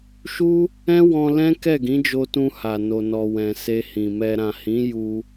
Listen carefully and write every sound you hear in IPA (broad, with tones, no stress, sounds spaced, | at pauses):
ʃ u˦ | ɛ̃˦ w ɔ̃˧ l ɛ̃˦ k ɛ˦˨ ɡ ĩ˨˦ d͡ʒ o˧ t ũ˧ h a˨ n o˨ n ɔ˨ w ɛ̃˨ s e˧ h ĩ˨ m ɛ˧ ɾ ã˨ h ĩ˨˦ j u˧